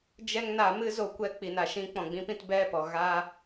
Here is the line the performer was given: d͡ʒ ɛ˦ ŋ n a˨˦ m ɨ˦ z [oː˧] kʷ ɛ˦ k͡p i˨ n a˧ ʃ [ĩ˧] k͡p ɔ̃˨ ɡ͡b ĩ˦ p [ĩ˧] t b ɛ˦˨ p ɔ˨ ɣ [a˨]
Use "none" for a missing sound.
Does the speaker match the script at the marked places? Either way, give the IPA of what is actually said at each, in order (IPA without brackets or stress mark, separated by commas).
o˧, ĩ˦, ĩ˧, a˦